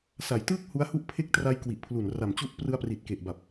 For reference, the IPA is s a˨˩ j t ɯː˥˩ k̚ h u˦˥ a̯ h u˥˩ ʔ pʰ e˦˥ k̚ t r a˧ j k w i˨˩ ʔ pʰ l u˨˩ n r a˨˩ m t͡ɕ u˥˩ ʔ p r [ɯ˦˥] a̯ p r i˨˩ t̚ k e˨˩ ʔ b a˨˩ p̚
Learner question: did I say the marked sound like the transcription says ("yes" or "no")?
no